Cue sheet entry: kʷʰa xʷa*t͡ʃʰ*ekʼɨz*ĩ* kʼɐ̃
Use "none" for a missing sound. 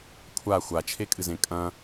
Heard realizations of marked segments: t͡ʃʰ, ẽ

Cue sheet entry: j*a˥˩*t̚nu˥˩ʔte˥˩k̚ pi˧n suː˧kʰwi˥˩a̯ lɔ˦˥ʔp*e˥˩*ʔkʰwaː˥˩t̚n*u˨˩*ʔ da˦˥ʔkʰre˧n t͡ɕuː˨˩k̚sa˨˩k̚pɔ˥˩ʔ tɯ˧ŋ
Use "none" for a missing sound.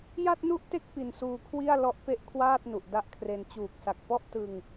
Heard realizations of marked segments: a˥˩, e˥˩, u˨˩

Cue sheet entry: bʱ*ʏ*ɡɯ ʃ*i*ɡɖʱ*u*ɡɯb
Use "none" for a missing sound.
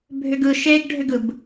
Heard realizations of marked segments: ʏ, e, ʏ

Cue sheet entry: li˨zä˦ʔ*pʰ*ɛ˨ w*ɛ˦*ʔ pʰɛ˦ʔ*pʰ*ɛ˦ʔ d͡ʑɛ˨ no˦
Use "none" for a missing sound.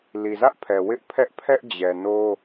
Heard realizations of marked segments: pʰ, ɪ˦, pʰ

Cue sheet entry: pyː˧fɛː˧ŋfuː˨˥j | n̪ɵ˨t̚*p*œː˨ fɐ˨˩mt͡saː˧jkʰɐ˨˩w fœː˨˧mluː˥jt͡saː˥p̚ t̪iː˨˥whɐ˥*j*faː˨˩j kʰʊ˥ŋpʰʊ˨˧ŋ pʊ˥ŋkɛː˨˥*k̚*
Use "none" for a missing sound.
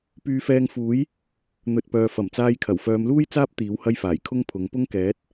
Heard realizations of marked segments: p, j, t̚

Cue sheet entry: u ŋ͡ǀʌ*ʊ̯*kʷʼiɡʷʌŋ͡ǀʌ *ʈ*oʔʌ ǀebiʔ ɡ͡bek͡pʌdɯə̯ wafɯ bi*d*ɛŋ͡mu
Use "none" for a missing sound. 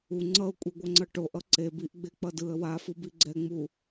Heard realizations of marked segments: ʊ̯, ʈ, ɡ͡ǀ

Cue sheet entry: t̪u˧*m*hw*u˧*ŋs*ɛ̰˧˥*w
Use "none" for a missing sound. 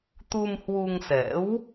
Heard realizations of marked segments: m, u˧, ɛ̰˧˥

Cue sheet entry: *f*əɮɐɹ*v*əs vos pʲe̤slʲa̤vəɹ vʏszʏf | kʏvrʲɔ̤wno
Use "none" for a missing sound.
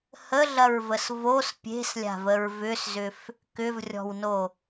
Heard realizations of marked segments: h, v

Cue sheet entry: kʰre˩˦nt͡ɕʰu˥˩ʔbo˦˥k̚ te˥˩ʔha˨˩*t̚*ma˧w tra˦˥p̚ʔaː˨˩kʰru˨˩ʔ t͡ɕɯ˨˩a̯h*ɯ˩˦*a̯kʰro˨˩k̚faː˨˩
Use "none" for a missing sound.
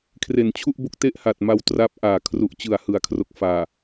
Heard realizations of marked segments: t̚, ɯ˩˦

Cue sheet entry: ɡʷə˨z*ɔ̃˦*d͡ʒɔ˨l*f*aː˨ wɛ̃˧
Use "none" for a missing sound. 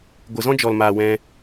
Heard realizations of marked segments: ɔ̃˦, m

